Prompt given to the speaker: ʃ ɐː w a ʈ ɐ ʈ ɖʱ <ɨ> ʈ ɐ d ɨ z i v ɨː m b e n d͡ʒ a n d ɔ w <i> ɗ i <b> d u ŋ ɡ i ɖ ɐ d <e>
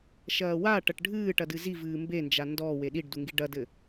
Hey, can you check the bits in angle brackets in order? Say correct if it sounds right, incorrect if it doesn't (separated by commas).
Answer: incorrect, incorrect, incorrect, incorrect